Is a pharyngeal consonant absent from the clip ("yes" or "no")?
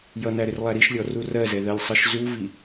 yes